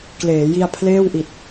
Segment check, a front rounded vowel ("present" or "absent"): absent